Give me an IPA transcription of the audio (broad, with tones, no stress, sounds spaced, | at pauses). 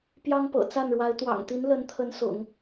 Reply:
p j ɑ˥ ŋ p ɤ̰˨˩ t͡s a˥˩ n ɻ w a˧˥ ɪ̯ t̪ w ɑ̰˨˩ ŋ t̪ i˧˥ n l ə˧˥ n t̪ʰ ə˧˥ n s ʊ̰˨˩˦ ŋ